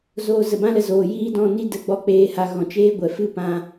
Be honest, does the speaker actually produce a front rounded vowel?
no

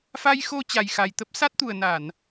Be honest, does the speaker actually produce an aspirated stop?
no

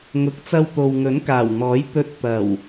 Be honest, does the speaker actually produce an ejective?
no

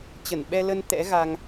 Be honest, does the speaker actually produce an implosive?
yes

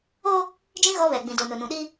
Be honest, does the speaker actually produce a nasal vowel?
yes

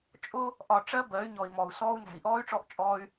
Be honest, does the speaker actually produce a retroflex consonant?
yes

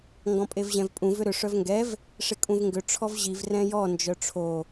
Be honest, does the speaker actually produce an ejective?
yes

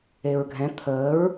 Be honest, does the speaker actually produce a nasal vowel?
yes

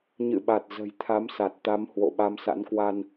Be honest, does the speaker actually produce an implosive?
yes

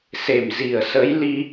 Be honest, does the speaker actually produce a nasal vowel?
no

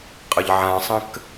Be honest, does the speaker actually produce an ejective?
yes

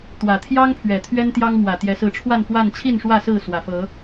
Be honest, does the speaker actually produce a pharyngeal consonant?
no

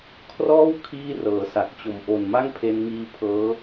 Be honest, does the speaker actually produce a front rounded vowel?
no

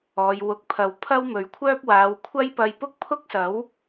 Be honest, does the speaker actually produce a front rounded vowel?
yes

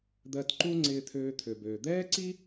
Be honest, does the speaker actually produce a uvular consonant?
no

